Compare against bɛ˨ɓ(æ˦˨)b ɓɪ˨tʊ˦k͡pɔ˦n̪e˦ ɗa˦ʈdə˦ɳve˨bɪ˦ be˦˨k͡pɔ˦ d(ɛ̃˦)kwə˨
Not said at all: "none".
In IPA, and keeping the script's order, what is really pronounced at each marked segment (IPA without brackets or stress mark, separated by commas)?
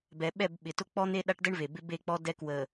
ɛ˦˨, ɛ˦